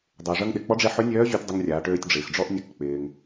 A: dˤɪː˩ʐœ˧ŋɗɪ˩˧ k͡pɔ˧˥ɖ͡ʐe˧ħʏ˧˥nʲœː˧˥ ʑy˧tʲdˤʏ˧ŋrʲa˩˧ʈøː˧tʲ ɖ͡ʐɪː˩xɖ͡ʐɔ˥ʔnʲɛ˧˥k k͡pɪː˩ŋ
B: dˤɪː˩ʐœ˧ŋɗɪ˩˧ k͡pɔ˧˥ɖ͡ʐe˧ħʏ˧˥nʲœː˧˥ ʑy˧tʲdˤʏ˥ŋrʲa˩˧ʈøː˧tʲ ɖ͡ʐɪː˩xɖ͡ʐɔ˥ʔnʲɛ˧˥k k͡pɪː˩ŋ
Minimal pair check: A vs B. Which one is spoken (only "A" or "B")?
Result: A